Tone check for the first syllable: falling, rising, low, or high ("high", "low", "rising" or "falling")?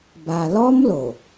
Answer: low